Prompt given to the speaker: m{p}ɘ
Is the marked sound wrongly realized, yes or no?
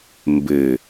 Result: yes